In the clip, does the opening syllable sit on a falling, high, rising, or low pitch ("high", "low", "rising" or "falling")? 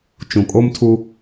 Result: low